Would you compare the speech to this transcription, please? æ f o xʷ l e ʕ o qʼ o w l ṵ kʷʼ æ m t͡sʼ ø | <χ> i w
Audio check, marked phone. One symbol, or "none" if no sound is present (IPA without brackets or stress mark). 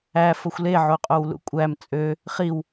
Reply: χ